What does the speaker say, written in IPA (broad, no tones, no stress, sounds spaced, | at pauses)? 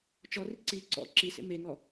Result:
t͡ʃ ɔ r i ǀ i ǀ ɔ̰ ǁ i s ḛ m e ŋ ɔ